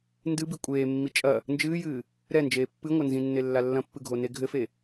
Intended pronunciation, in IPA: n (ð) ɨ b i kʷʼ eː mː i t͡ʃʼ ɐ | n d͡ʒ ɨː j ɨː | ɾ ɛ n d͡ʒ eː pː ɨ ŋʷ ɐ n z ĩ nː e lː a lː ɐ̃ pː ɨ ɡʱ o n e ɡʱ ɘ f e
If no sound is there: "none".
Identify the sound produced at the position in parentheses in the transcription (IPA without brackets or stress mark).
d